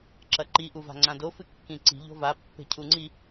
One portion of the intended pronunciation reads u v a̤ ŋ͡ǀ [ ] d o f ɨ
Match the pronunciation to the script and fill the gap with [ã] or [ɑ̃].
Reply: ã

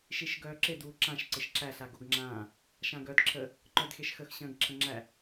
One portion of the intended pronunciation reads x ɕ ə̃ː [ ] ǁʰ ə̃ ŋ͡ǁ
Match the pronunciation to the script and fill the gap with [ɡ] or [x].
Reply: ɡ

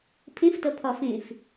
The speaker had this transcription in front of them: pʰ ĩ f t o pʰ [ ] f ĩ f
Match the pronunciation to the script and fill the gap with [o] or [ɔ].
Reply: ɔ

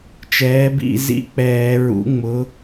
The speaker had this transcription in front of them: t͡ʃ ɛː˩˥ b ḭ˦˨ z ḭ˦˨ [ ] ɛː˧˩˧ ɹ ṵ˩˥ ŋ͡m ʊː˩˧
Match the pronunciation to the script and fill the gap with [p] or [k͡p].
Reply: k͡p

